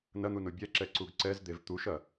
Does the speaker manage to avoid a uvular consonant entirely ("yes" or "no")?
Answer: yes